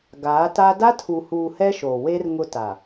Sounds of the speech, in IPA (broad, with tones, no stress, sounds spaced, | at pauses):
ɡ aː˨˦ t a˦ d a˦ tʰ u˨ h uː˨ h ɛ˦ ʃ o˨ w e˦ r ŋ ʊ˦ t a˨